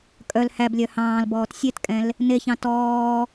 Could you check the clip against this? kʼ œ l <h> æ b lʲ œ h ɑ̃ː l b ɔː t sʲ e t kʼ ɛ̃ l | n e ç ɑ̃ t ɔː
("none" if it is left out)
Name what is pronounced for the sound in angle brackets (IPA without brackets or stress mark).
h